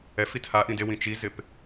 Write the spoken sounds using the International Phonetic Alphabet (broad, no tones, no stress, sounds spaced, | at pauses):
ɛ f i t h a ʔ ĩ d e w ĩ t͡ʃ i z ɪ p